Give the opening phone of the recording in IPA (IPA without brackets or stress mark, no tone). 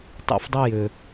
tˤ